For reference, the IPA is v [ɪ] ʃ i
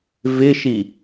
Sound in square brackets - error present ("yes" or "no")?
no